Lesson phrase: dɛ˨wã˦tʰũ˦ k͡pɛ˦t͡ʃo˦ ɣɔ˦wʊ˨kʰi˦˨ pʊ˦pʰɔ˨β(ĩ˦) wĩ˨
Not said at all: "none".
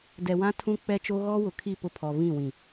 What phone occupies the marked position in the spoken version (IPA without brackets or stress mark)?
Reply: ĩ˦˨